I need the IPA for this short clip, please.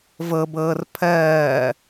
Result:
v ɤ b ɤː r pʰ ɜː

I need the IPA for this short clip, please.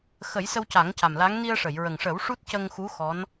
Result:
x ə˨˩˦ j s ə˧ w c a˨˩˦ ŋ c a˨˩ m l a˧˥ ŋ n i˧ ə̯ ʂ ə˨˩˨ j ɹ ə˨˩ ŋ ʂ ə˨˩˦ w ʂ u˦˥ t̚ c ə˧ ŋ x u˧˥ x ɔ˧˥ n

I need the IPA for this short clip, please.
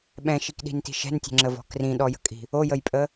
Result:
ɓ ɛ̃ ʃ i k ɗ i̤ n t i̤ ʃ ɛ̤ n tʲ ɛ̤ ŋ͡ǁ ə v ɔ̤ k r ĩ ɗ ɔ j ə̤ kʼ i̤ | o j ə j pʼ ə

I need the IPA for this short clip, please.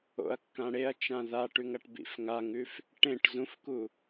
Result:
o̰ ɐ̯ kː ã ɽ e ɐ̯ t͡ʃ ã ð a ʈ ʉ ŋ ɐ ʈ b ḭ f ŋ a ŋ ʉ f | ʈ ẽ ʈ z ũ f k u

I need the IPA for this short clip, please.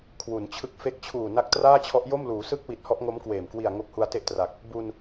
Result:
kʰ w u˩˦ n t͡ɕʰ ɯ˦˥ k̚ f e˥˩ k̚ t͡ɕʰ uː˨˩ n a˦˥ k̚ t r aː˥˩ t͡ɕʰ ɔ˦˥ ʔ j o˥˩ m l uː˩˦ s ɯ˥˩ k̚ w i˨˩ t̚ h ɔ˦˥ ʔ ŋ o˦˥ m k w eː˨˩ m k w i˨˩ a̯ ŋ o˦˥ k̚ h u˧ a̯ t e˥˩ ʔ t r a˨˩ k̚ | b u˧ n

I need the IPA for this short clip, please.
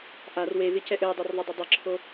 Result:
ʔ a r w e v ɪ c ɛ ʔ ɘ j dˤ ɘ r ðˤ ɪ dˤ ɪ dˤ ɪ ǁʰ o

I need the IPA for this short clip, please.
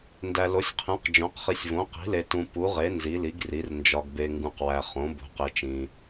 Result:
n d æ˨ l o˩˥ sʲ qʰ ẽ˩˥ q d͡ʒ õ˩˥ q χ i˨ sʲ v õ˩˥ q i̤˩˥ l e˨ t ũ˨ p u˩˥ ʁ e˩˥ n z i˩˥ l i˩˥ ɡ r i˩˥ r n d͡ʒ ɒ˨ ɡ b e˨ ŋ ɡ ũ˨ q w æ˨ χ õ˩˥ b o̤˩˥ q e˨ t͡ʃ ĩ˨

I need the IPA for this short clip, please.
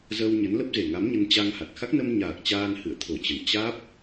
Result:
z ə˧ w ɲ ə˨˦ n l ə˦˥ p̚ z e˨˩ ŋ a˨˦ m ɲ ə˧ n t͡ɕ a˧ ŋ h a˨˩ t̚ x a˦˥ k̚ n ə˧ m ɲ aː˨˩ k̚ t͡ɕ aː˧ n h ɨ̰˧˨ ə̯ t̪ʰ o˧˩ t͡ɕ ə˨˩ n t͡ɕ aː˦˥ p̚

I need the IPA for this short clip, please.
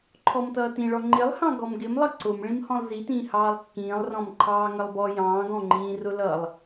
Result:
ǃʰ ɔ m t ʌː t ĩ ɭ ɔ ŋ͡ǃ ɪ lˠ h ɑ̃ ɡ ɔ m ɡ ɪ m lˠ ʌ ǀ ʊ m ɭ ĩ m h ɔ̃ lˠ z i t ĩː h ɑː lˠ kː ĩː lˠ r ɔ̃ m ǃʰ ɑː ŋ ʌ lˠ b ɔ j ɑ̃ː ɡ ɔ̃ ŋ͡ǃ ĩː r ʊ l ʌ lˠ

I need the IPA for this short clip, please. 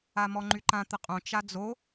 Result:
a m ɔ ŋ͡ǃ y ǃ ã t̪ ə qʼ õ t͡ʃ a d͡z o

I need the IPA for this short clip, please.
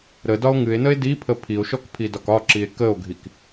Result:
ɾ ə d ɒ o̯ ŋ ɨ e̯ n ə e̯ d i pʰ ə pʰ i o̯ ʃ ɔ k pʰ i d ɒ k ɒ ǁ i e̯ k ə o̯ ɡʱ i k

